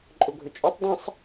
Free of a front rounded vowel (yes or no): no